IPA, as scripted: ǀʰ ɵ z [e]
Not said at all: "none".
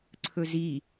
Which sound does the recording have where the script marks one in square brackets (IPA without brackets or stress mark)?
i